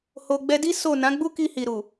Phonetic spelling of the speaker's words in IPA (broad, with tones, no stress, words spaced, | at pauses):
ho˨ɡ͡bɛ˧di˦ so˦˨ nã˨˦ɡ͡bu˦ki˧ hi˨ ɾu˨